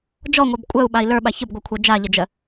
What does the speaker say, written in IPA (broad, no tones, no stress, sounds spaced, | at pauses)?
d͡ʒ ɔ ŋʷ œ b kʷʼ œ u̯ ɓ a i̯ l ə˞ ɓ a ç ə b ɡʷ ə˞ kʷʰ ɜ d͡ʒ a ʎ ə d͡ʒ ɜ